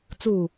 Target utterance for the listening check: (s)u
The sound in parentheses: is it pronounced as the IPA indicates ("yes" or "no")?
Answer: no